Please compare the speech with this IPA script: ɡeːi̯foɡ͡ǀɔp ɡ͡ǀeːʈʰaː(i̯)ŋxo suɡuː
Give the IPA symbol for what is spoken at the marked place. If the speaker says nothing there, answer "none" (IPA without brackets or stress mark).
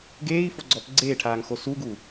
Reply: none